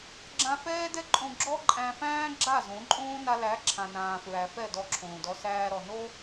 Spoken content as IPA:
ɡ͡ǁã˧ fɛː˦dɛ˦ǃʼõ˧ɡ͡ǁɔ˦ ǃʼæ̃˧ fæ̃ː˦ ɡ͡ǁa˦˨ zõ˨˦ǃʼõː˦ na˧læ˨˦ ǁʰã˨nãː˨fɹæ˨ fɛ˦˨dɔ˧ǁʰõː˨dɔ˧ sæː˧ɾɔ˨no˦

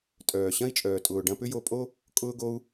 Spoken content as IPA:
tʼœː˨ ɕɐ̃˦i̯t͡ʃʼœː˨tʼʊː˨ ɖɐ̃˧pʏ˦jo˧pʼo˦ | kʼʊː˧ɡo˧u̯

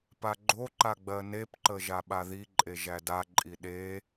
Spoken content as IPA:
paɡ͡ǃoǃa ɡ͡bɜnepǃə ʒaɓaðiǃʼe ʒædaǃʼi ɗe

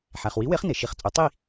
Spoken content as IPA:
ħæ˩χwi˨˥we˨˥χ ne˩ʃi˧˩˧χ t͡sʼu˩˧tˤi˥˨

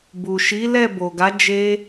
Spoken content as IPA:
bu˨ʃi˨˦ lɛ˦˨bo˨ɡa˨˦ d͡ʒe˧

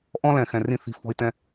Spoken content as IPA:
ʔɔ̃˦lɛ̃˨xɛ̃˨ rĩ˦θi̤˧ fɔ̤˧i̯tɛ̃˦

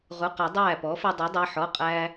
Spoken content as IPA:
ʁu˩˧˩qa˨˩˦ dˤæː˥˩ pɔ˩˥fɘ˧dˤe˩˥dˤɛ˩˧˩ ħɔ˩˧˩qʼæː˧

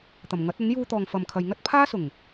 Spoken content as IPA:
t̪ɐ˨˩mŋɐ˨˥t̚ɐ˨˥n juː˧t̪ɔː˨ŋfɐ˨mkʰɐ˨j ŋɐ˥t̚pʰaː˥sʊ˨˩ŋ

